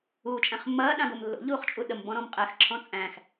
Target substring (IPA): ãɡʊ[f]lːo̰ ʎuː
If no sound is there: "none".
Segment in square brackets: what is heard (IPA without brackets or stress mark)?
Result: m